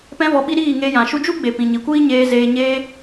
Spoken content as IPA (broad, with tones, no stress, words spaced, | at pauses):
pɛ̃˦vɔ˧ɓi˦ ɾiː˦˨ŋe˧jã˨ ʃu˧d͡ʒu˦ɡ͡be˨ pĩ˨ɲi˨kʷiː˦ɲeː˧ zeː˨ɲeː˧